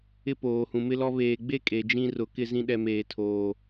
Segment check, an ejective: present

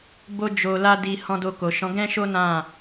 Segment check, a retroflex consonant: absent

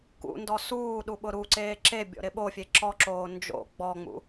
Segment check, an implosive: present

